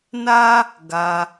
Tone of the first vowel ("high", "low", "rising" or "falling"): high